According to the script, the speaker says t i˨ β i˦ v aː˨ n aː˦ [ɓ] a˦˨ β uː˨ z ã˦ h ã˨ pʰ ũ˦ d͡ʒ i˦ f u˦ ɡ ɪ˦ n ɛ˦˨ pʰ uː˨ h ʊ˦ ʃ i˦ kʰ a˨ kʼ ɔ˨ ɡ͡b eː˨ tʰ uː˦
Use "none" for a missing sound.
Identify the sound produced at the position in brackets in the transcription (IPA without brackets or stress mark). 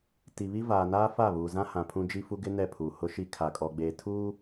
f